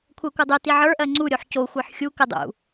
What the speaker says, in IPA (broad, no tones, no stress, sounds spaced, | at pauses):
kʷʰ ɜ kʷ ə˞ dˤ ɯ t i ʕ ə˞ ʔ ɜ ŋ͡ǀ u ɾʲ o ħ c o xʷ ə˞ ħ xʲ u k ə dˤ ṵ